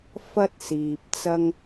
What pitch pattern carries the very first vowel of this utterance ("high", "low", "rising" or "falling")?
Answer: high